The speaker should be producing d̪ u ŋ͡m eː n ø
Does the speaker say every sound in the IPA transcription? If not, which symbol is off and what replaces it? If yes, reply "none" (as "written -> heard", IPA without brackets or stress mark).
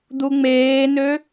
none